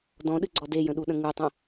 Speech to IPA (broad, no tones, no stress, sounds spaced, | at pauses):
d ɔ̃ ɗ ɨ ɡ͡ǀ ɔ d e j ə̃ ɗ u ɗ ə̃ ŋ u tˤ ə̃